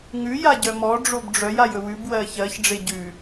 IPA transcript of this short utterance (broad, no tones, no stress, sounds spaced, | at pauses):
ŋ ʉ j a ɟ œ m ɔ ɖ͡ʐ o b ɖ͡ʐ œ j a j ɵ w ʉ b w ɜ ç ɜ ç ɖ͡ʐ e ɟ ʉ